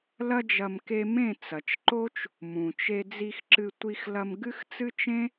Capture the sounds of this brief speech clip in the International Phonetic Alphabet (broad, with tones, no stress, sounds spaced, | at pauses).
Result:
l ɐ˦ d͡ʒ ɐ˧ m k e˧ m ẽ˦˨ t͡s ɐ˨ t͡ʃ ǃ o˦ t͡ʃ | m ũ˨ t͡ʃ e˧ d͡z i˧ x ǁ ɨ˧ tʷ i˧ x l ɐ˧ m ɡ ɨ˦ x t͡s ɨ˦ t͡ʃ ẽ˦